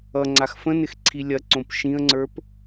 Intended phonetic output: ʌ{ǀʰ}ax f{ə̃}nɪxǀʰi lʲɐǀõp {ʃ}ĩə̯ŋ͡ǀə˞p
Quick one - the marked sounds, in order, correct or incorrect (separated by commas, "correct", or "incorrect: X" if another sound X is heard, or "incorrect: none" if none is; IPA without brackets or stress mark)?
incorrect: ŋ͡ǀ, correct, correct